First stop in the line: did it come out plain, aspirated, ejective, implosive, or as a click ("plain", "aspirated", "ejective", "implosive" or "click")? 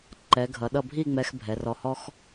click